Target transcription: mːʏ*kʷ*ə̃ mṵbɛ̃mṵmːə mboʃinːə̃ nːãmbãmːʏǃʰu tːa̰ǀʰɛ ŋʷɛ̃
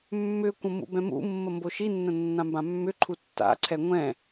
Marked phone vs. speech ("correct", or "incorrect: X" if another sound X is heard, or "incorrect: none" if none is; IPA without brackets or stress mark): correct